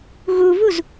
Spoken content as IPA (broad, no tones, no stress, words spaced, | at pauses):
ɣuvuz